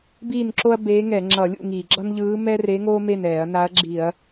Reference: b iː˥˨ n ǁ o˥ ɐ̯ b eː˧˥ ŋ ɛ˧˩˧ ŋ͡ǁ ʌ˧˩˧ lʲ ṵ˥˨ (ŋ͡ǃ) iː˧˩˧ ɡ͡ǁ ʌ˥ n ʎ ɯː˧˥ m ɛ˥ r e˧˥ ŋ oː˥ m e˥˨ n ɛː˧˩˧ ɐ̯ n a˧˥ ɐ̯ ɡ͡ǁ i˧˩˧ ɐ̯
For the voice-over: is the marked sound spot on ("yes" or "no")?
no